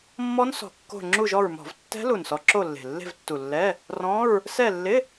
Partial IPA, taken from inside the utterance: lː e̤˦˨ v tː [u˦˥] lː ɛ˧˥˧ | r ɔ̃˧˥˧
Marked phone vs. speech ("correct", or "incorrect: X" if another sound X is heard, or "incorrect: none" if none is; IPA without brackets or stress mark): incorrect: u˨˩